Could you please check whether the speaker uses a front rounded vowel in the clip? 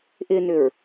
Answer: yes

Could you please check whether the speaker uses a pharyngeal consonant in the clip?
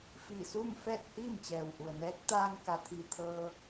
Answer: no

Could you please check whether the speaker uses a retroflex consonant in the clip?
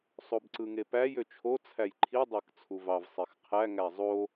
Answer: no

